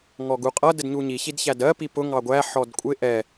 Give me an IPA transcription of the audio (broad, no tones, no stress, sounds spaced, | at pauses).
ŋ ɔ ɡ u qʼ ʌ d ə d ɲ u ɲ i ç i d ç æ d ɜ p i p ʊ ŋ ɑ ɡʷ æ ħ ɔ d kʷʼ ɪ ʔ ɛ